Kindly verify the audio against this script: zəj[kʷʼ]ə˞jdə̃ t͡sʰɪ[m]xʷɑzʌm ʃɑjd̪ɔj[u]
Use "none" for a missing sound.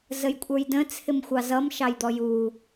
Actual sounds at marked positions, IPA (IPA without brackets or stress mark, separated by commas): kʷʼ, m, u